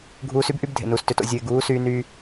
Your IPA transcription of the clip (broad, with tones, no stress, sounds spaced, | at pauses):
ɡʱ uː˧ s y˦ b ʔ y˦ b dʱ ḛ˨ n uː˨ s t ø˧ t o̰˧ zʲ u˨ ɪ̯ ɡ uː˨˦ s yː˧ n yː˧